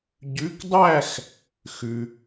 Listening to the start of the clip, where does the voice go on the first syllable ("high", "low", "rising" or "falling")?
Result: rising